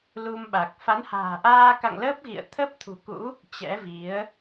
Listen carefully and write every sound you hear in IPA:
lu˧mɓa˨˩k̚ fa˨˦nha̤ː˨˩ʔaː˧ka̰˧˨ŋ ləː˦˥p̚ɣḭ˧˨ə̯ t̪ʰə˦˥p̚t̪ʰṳ˨˩kṵ˧˥ | t͡ɕɛ̰˧˥vi˨˦ə̯

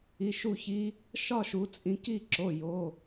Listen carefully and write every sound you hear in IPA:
i˩˧˩ʃu˥˩çi˧˥ | ʃɒ˥˧ʃu˩˧t͡sʼĩ˩˧ ki˥˧ǁo˩˧˩jo˩˧˩

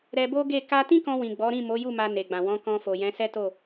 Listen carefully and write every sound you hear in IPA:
ɾɛ˧bo˦ɡe˦˨ ka˧tĩ˦kɔ̃˧wĩ˨ ɡ͡bɔ˨˦ɾĩ˦˨mo˨˦ju˦˨ ma˧ne˨ɡ͡bã˨ wɔ̃˨˦kɔ̃˧fo˨ jɛ̃˨˦sɛ˦to˦˨

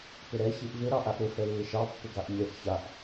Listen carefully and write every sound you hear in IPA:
pɪɾɛ çiʔvɪ ɾɑʔaʔɾɪ fɛlːɪʃɑ pːɪɡaʔmʲɛʔ çaʔ

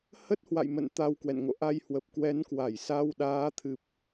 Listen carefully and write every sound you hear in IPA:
hə˦˥t̚hwa̰˧˨jmə̰˧˨n t̪a˧wkwɛ̰˧˨n ŋo̰˧˨ ʔa˧jhwə˨˩p̚ kwɛ˨˦nkwa˧˩jsa˧wɗaː˨˦ t̪ʰɨ˨˩p̚

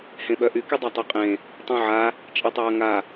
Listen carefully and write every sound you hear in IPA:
hẽɓœʔy kydˤatˤœqʼẽ | tˤũʕa | t͡ʃʼetˤɐːŋa

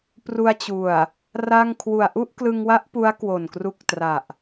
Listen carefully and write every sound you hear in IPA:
pru˧a̯t͡ɕu˨˩a̯ | ra˥˩ŋ kʰwu˨˩a̯ʔu˥˩ʔklɯ˧ŋwa˦˥ʔ pu˦˥a̯kwo˨˩n kru˦˥k̚tra˨˩ʔ

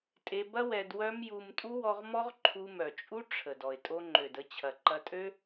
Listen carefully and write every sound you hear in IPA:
tʼe˧bɐ˦ wɛ˧dwœ˦m ju˧m tʼu˦wɔ˧ʁmɔ˦ʁ ǃʰu˧mœ˨t͡ʃʼu˦ ʈ͡ʂʰə˨dɔ˨ɪ̯ tʼo˧ŋ͡ǃø˨də˧t͡ɕʰɐ˨ ǃɐ˧tʼø˦

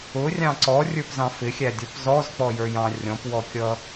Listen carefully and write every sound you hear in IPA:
ʊrʲɑ̃ ǀɔrʲə˞pzɑ̃ fɪxʲædʲɔp zɔzk͡pɔjə˞jɑ̃ rʲɔ̃pwɔkʲʌ

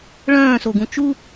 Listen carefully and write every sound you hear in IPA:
ɭœ̃ːsoɡũ t͡ʃu

